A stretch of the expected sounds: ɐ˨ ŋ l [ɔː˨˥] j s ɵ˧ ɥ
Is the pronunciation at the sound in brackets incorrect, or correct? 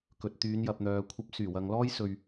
incorrect: ɔː˥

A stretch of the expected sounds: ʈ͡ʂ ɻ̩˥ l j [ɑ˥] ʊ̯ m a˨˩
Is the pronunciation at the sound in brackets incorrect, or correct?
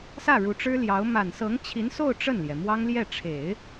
incorrect: ɑ˧˥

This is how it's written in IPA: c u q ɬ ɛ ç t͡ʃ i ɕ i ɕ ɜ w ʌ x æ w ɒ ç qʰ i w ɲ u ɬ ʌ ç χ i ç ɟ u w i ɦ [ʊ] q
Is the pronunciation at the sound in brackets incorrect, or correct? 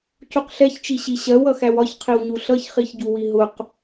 correct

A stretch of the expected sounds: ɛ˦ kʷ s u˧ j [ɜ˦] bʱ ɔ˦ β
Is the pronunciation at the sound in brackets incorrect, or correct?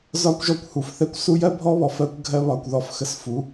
correct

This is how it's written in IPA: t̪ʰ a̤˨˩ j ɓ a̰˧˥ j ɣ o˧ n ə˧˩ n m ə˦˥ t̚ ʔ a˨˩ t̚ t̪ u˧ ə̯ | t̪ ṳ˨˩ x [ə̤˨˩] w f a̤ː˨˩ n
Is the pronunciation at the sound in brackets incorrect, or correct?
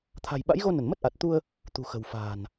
correct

